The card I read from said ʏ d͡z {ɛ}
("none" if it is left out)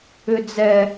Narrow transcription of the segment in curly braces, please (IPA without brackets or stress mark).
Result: ɛ